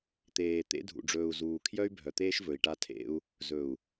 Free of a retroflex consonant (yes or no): no